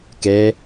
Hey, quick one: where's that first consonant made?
velum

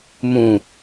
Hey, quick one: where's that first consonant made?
lips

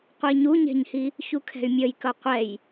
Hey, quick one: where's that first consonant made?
uvula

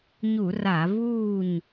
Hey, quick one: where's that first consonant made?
palate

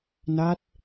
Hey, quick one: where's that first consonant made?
tongue tip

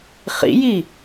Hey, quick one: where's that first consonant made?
uvula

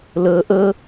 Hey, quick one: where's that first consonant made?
tongue tip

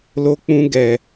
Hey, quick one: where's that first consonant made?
tongue tip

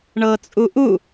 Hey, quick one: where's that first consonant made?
retroflex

